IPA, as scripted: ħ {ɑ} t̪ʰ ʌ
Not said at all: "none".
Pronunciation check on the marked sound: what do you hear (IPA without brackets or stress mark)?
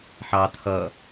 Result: ɑ